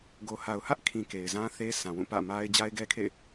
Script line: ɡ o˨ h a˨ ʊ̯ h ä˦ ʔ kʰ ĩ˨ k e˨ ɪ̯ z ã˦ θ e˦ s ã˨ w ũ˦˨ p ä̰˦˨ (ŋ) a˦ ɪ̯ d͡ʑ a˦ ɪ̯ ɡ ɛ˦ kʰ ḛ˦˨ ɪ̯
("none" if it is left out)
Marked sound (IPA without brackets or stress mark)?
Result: m